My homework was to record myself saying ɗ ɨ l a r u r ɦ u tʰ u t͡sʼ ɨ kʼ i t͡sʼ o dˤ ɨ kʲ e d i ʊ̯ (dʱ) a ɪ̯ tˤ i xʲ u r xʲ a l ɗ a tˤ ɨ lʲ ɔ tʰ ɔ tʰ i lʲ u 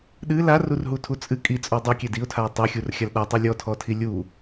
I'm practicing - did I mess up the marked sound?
yes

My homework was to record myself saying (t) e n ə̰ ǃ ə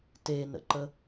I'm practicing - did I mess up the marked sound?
no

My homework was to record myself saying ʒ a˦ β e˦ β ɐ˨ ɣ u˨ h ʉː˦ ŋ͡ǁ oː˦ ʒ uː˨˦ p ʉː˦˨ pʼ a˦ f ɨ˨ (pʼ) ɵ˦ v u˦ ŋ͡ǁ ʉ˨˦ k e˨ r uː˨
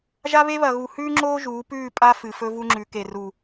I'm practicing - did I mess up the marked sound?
yes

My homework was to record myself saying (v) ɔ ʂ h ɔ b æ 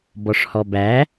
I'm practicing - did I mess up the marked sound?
yes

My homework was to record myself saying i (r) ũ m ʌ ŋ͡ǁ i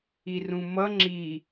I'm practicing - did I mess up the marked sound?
no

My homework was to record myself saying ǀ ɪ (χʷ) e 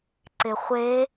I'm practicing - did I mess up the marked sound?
no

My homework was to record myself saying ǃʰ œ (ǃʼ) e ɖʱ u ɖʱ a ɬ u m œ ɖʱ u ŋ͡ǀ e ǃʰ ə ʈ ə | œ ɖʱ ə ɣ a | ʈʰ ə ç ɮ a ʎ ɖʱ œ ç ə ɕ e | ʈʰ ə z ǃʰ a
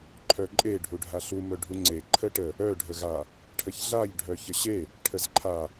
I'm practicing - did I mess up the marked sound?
no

